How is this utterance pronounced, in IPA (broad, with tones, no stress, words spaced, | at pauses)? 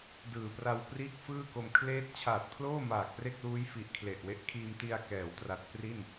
dɯː˨˩pra˧wpriː˥˩k̚fɯː˥˩ ko˧mkʰleː˥˩t̚ t͡ɕʰaː˨˩t̚pʰloː˥˩maː˨˩k̚ pre˥˩k̚luː˦˥jfi˨˩ʔkʰle˨˩ʔ we˦˥ʔkʰiː˧mti˧a̯ kɛː˩˦wtra˨˩t̚ pri˥˩n